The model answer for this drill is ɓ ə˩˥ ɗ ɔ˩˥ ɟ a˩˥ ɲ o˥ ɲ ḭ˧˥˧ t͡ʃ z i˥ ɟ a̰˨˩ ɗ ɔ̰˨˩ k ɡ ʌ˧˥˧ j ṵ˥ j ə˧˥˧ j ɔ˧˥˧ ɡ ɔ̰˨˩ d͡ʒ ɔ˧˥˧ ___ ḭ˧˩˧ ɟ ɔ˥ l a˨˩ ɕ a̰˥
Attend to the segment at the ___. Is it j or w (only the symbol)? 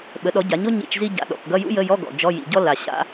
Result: j